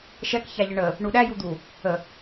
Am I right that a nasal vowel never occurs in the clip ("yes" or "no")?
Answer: yes